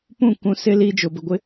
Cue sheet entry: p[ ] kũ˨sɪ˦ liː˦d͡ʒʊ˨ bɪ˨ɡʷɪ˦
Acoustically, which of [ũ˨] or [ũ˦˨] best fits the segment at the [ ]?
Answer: ũ˦˨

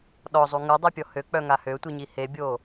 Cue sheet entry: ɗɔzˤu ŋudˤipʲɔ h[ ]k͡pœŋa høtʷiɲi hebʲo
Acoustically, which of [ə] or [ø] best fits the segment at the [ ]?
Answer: ø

